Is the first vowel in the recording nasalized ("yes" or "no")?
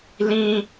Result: yes